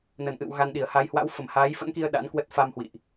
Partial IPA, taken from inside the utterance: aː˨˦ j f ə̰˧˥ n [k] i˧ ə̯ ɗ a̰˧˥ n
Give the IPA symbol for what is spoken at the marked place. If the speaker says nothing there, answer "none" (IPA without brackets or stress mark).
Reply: k